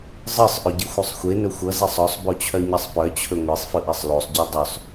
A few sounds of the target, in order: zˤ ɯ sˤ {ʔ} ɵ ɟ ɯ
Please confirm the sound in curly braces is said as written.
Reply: yes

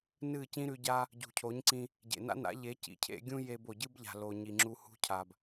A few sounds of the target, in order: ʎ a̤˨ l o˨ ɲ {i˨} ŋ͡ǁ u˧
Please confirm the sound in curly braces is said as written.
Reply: yes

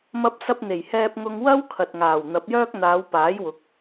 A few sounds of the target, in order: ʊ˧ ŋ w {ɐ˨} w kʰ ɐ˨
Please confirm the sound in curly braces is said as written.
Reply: no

